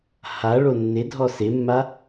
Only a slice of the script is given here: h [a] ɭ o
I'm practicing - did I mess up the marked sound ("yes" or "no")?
no